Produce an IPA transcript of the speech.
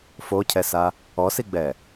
f o cʰ ɛ s a | ɔ s i ɡ͡b ɛ

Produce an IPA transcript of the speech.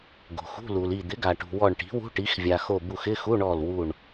ɡ o̤˩ x ṳ˧˥˧ l u˩ l i˧˩ d̪ ɪ˩˥ ɡ a˩ ʈ ṳ˩ w ɔ˧˩ ɳ ʈ i̤˩˥ w ṳ˧˥˧ ʈ i˩˥ x vʲ a˩ x o˧˩ b u˧˩ x ɪ˧˥˧ x u˧˥˧ ɳ ɔ˧˩ l w u˧˩ ɳ

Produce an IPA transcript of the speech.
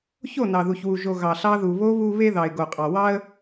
ç o˦˨ n ɑ˨ ð u˨ ç w u˨ ʒ o˨ ɣ ɑ˨ ɬ ɑ˧ ð u˨ β o˧ β u˦ β e˦ ð ɑ˨ ɪ̯ ɡ o˨ qʼ ɑ˨ w ɑ˦ ə̯

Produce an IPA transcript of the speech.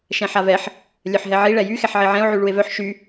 ʃ ɛ̃ ħ a v ɛ ħ | lʲ œ ħ ɦ ɛ ʕ i ɭ ɛ j y x ɛ ħ ʕ i ʕ ɛ̃ o̯ ʕ y ɭ u e̯ v œ ħ ʃ y

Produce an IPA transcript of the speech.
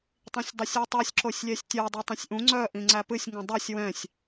tˤ ĩ sʲ dˤ i sʲ u tˤ œ sʲ ǁ o sʲ lʲ ɛ sʲ tʲ œ dˤ ɨ tˤ ĩ sʲ ʔ ũ ŋ͡ǀ œ ʔ ĩ ŋ͡ǀ æ p ɨ sʲ ŋ ũ dˤ ɨ sʲ w ɛ̃ sʲ

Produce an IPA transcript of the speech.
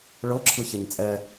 ɭ ɤ ǁʰ ɯ ç ɛ ɲ t͡sʼ ɛ

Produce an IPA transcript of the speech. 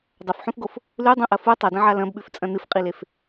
dˤ ɐ f ħ ũ f ɡ o f | l ʉ dˤ õ ʔ ɐ f u tˤ ɐ d ɐ̃ ʕ a l ɐ̃ b ɓ ʉ f t͡sʼ ɐ̃ n ɨ f qʼ i l e f

